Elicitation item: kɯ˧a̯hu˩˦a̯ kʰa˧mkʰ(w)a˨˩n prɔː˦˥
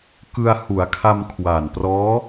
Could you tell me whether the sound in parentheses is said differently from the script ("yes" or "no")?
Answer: no